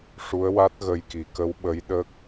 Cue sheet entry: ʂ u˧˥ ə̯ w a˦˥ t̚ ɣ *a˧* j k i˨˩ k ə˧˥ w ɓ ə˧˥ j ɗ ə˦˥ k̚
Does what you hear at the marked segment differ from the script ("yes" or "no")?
yes